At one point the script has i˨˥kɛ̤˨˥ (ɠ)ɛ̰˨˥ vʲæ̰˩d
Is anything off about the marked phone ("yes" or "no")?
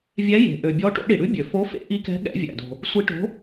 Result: no